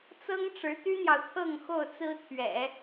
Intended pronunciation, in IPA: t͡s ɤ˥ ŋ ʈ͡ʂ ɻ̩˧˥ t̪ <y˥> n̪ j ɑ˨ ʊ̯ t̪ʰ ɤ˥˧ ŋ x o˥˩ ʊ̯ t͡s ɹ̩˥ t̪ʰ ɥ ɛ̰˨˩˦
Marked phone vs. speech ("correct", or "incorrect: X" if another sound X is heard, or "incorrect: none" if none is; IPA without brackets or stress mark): correct